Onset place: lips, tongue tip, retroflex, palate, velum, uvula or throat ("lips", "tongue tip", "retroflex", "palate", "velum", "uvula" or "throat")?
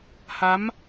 throat